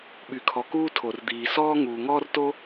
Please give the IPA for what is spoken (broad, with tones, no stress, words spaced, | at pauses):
ɓy˩kʰɔ˩kuː˥ tʰo˩rd̪iː˩ sɔː˥ŋuː˩ŋɔː˥rto˥